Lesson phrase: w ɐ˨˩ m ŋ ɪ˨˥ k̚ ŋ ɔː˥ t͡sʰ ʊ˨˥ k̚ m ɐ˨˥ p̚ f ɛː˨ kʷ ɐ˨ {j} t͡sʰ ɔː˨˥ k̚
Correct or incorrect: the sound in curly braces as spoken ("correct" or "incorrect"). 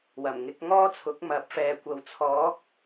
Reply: incorrect